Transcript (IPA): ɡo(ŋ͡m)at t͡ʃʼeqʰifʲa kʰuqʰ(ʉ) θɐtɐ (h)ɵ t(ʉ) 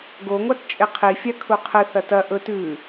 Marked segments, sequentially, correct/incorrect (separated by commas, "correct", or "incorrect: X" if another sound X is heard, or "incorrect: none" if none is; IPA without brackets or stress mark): incorrect: ŋʷ, incorrect: ɨ, incorrect: ʔ, correct